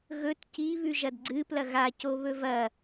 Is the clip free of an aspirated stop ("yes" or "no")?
yes